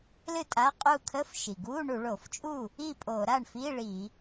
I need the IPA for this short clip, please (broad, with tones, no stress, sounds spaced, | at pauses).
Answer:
l ɨ˥˩ tʼ a˧˥˧ qʼ u˥˩ kʰ ə˧˥˧ f ʃ i˩ ɡ u˧˥˧ ɳ u˧˩˧ ɭ o˧˩˧ f t͡ʃʼ u˥˩ | i˥˩ pʼ o˧˩˧ ɾ a˥˩ ɳ f i˧˥˧ ɭ i˧˩˧